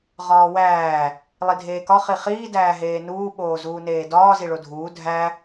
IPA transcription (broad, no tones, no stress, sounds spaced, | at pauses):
ʁ ɒː w æː | lˠ i dʱ eː k ɒ χ i χ iː d æː ɦ eː n uː ɓ oː z uː n eː d ɒː z i ɭ o dʱ uː dʱ æ